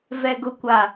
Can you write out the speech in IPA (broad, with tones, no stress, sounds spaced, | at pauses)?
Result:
v ɛ˨ ɡ ʊ˨ kʷ a˨